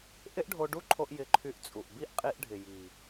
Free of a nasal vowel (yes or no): yes